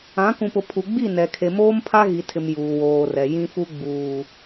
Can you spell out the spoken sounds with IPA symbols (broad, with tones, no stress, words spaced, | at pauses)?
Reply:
ã˨˦ kũ˨pʊ˨pʰu˨ ɡ͡bi˦˨nɛ˨kʰe˨moː˦m pʰa˦ɣi˨tʰɪ˨m juː˨woː˨rɛ˨ jĩ˦fu˦ ɡ͡buː˨